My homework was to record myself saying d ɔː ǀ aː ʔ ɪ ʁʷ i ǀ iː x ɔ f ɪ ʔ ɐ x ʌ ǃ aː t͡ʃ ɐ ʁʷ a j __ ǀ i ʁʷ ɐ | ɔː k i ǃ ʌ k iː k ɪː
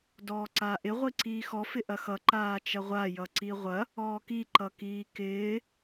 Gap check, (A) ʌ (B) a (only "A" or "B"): A